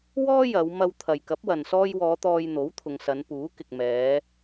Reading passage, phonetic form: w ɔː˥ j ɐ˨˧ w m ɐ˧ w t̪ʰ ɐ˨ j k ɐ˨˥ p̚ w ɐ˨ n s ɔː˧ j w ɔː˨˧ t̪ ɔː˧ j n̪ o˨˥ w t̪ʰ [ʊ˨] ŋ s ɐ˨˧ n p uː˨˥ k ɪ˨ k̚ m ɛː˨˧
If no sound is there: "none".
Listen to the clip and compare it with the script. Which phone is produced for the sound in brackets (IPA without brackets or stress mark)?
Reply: ʊ˨